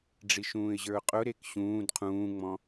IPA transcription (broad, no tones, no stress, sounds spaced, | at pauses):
ɖ͡ʐ i ʃ ũː ɪ̯ ʑ ə˞ ʊ̯ qʼ ʊ ɾ e k ɕ ũː d qʰ ũː ŋ͡m ɔ̃